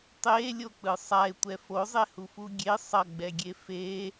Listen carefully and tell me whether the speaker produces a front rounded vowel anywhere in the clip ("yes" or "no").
no